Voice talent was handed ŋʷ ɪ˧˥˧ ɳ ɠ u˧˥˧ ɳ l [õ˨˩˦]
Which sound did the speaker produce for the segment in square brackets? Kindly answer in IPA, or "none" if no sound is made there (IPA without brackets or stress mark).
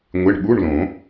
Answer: õ˨˩˦